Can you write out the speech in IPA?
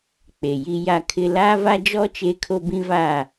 k͡p e˨ j i˦ j a˦ kʰ ɪ˦ l aː˦ v a˦ d͡ʒ ɔ˦ t͡ʃ e˦ kʰ o˦ b ĩ˦ v a˦˨

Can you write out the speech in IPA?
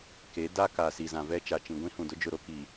k e˨˦ d a˦ k a˨ s i˨ z ã˨ v ɛ˦ t͡ʃ a˨ t͡ʃ ĩ˨ ɡʷ ĩ˦ h ũ˨ d ʊ˦ d͡ʒ ʊ˦˨ ɾ o˦ k i˨

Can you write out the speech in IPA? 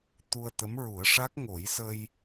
t̪ u˧ ə̯ t̪ ə˧˥ m ɹ u˨˩˦ ə̯ ʂ a˦˥ k̚ ŋ o˨˩˦ j s ə˧ j

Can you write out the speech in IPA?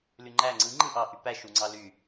l y ŋ͡ǃ æ ŋ͡ǀ ɯ ŋ͡ǃ ɯ ʔ ɑ ʔ y p æ ʃ u ŋ͡ǀ ɑ l y

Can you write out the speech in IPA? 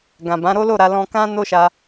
ɡ ã˨ b ã˨˦ ɾ o˦ l o˦˨ ɾ a˧ l ɔ̃˧ k ã˦ n o˦ ʃ a˧

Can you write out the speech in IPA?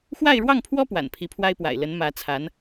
x w a˥˧ ɪ̯ ɻ w ɑ˥˩ ŋ pʰ w ɔ˥ p w a̰˨˩ n pʰ i˧˥ pʰ w a˥ ɪ̯ p w a̰˨˩ ɪ̯ l ə˧˥ n m ä˧˥ t͡sʰ a˧˥ n

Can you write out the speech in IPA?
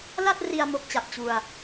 l a˥˩ t̚ r i˧ a̯ m o˦˥ k̚ t͡ɕ a˨˩ p̚ t͡ɕ u˧ a̯

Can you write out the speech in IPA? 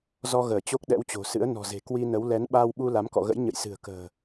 z ɔ˧ ɣ əː˧˩ t͡ɕ o˦˥ k̚ ɗ ɛ̰˧˥ w t͡ɕ o̤˨˩ s ɨ̰˧˥ ə̯ n ɔ̤˨˩ z e̤˨˩ k w i˧ n ə˨˦ w l ɛ˨˦ n ɓ aː˧ w ɓ u˧ l a˨˦ m k ɔ̰˧˨ ɣ ə̰˧˥ j ɲ ə̰˧˨ j s ɨ̤˨˩ ə̯ k ə̤ː˨˩

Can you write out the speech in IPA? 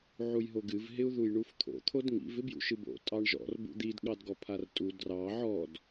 ʕ u j ɦ o ɡ ɨ v ɦ ɪ u̯ ð u j ɳ u f t̪ʰ o̰ t̪ʰ o d ŋ ḭ v ɪ b j ṵ ʃ ɨ b o̰ tʼ ɑ ɳ ʒ ɔ̰ r b ṵ d̪ i d ɠ ɑ d ɡ ɔ pʰ a r tʼ u d r ɑ ʕ ɔ d

